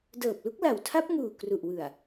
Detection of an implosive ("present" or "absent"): absent